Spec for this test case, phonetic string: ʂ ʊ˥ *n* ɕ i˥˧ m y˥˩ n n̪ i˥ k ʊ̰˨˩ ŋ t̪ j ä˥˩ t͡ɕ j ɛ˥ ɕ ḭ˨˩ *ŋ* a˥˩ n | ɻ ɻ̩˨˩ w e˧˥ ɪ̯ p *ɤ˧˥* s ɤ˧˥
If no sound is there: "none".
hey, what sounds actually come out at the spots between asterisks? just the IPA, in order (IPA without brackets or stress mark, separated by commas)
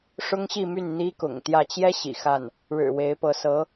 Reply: ŋ, x, ɤ˧˥